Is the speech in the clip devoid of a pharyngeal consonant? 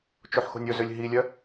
no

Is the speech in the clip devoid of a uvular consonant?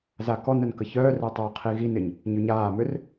no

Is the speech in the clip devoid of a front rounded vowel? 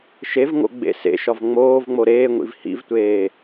yes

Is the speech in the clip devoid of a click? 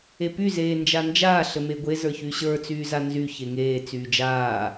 yes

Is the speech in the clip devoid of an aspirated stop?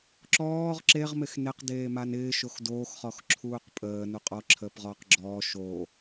no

